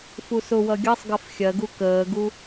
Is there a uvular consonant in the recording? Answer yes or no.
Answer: no